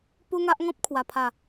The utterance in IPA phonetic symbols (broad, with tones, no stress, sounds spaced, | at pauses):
p u˦ ŋ a˦ ʔ ŋ ɔ̃˦ p̚ kʰ w a˨˩ pʰ a˨˩